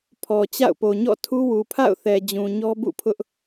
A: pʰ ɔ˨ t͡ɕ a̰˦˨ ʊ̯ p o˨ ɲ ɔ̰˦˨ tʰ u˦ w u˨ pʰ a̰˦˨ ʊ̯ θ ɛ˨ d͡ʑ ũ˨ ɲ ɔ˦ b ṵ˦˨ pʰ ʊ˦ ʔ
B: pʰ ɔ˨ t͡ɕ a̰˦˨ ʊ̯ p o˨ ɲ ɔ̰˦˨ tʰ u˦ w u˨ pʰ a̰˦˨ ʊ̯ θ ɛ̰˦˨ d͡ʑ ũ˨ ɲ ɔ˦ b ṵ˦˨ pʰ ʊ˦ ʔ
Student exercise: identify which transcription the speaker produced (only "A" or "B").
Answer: A